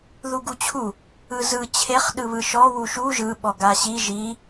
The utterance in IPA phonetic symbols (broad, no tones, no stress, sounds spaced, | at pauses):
ð u ɡ u t͡ɕʰ u | ɯ z ɯ t͡ɕʰ e χ ɗ ɯ β ɯ ʃ ɔ w u ʃ u ʒ ɯ ɓ ɔ ɡ a ɕ i ʒ i